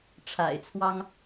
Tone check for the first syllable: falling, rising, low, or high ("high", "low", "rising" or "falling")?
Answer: low